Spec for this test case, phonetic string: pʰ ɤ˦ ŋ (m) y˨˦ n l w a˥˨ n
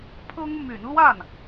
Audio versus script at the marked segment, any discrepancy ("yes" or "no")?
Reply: no